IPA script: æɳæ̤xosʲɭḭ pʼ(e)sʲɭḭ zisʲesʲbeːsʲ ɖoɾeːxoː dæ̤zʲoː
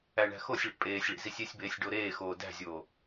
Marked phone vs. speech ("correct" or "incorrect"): incorrect